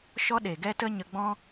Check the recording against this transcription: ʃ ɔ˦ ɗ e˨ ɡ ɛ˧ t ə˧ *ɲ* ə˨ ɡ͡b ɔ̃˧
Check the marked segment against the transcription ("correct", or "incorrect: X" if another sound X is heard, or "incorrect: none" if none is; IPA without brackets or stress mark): correct